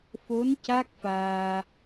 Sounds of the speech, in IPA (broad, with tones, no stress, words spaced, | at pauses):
fo˧˥n ca˦˥k̚faː˧